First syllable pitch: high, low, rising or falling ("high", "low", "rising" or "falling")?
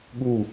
falling